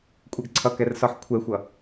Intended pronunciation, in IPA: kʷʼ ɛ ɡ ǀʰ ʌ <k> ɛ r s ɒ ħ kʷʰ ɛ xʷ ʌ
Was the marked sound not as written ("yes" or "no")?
no